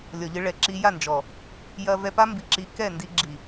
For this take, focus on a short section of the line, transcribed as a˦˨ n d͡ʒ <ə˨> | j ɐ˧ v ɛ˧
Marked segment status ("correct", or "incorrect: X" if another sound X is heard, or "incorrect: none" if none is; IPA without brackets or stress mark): incorrect: ɔ˨